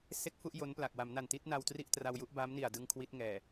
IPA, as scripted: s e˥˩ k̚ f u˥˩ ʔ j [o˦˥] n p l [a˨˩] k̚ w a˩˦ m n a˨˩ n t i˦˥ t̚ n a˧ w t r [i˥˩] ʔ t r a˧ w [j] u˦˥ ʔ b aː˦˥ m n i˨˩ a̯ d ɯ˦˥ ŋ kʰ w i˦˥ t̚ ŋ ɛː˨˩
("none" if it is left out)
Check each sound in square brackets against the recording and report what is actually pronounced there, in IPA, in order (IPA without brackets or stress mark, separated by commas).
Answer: o˦˥, a˨˩, i˥˩, j